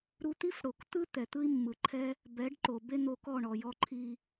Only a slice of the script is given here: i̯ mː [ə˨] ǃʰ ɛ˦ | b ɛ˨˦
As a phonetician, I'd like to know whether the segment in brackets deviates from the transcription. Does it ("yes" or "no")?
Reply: yes